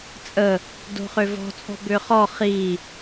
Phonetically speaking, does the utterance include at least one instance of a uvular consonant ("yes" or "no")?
yes